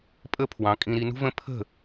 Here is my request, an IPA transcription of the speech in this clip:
pʼ ə˦ pʰ w ɑ̃˨˦ kʼ ĩ˧ ɾ i˧ n ṳ˦ v ə̃˦ pʰ ə̤˦˨

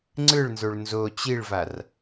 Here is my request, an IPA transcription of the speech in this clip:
ŋ͡ǀ ɯ ɭ n z o ɭ n z o t͡ɕ i ɭ v a r

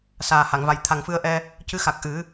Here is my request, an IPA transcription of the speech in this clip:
s aː˨˩ h a˨˩˨ ŋ v a˨˩ j t̪ʰ a˨˩ ŋ f ɨ˧ ə̯ ʔ ɛ˧ | c ɨ˧˥ x a˨˩ k̚ ʔ ɨ˨˩˦

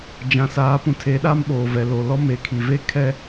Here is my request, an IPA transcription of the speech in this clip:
d͡ʒ ã˨ s aː˨˦ p ũ˨ tʰ e˨˦ ɗ aː˦ m ɓ oː˨ v ɛ˨ l o˨ l ɔ˦ m e˨ kʰ i˨ v e˦ kʰ ɛ˦

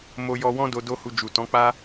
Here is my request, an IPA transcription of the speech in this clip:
m o˧ j ɔ˧ w ɔ̃˦ d o˧ d o˦ h u˧ d͡ʒ u˨ t ɔ̃˨˦ k͡p a˦

